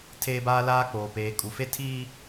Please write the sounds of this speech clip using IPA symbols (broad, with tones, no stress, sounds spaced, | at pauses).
tʰ eː˦ b aː˦ l aː˦ k͡p oː˨ p eː˨ kʼ u˨ f e˦ tʰ iː˦